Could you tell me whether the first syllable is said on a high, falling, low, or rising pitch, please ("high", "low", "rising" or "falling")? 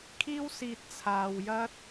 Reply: high